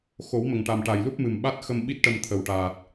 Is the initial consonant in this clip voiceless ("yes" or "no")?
yes